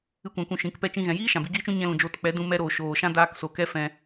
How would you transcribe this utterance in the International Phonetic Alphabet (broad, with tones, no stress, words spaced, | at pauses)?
ɨ˦kʷã˧kʷũ˧ ʃĩ˨˦kpɛ˦t͡ʃĩ˦ɣɛ̃˧ jiː˦ ʃã˨bi˧ɡiː˦t͡ʃũ˦ ɲɛ̃˧lũ˨ d͡ʒoː˧tk͡pɛ˨˦ dũ˧mɛ˧ɾoː˨ ʃoː˨ʃã˦daː˧kso˨ kɛ˦fɛ̃˧